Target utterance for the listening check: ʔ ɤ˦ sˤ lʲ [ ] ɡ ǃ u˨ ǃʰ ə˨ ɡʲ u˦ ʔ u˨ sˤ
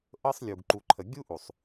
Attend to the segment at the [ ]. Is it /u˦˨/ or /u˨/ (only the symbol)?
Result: u˨